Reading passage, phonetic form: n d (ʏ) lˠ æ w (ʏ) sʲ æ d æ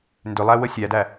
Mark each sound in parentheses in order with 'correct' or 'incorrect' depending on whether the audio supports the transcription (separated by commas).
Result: correct, incorrect